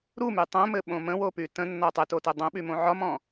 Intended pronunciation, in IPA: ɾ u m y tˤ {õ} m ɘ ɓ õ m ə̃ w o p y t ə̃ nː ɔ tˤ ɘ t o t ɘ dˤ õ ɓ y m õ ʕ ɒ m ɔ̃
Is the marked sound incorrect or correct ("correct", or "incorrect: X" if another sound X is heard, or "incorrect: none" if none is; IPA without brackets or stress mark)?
correct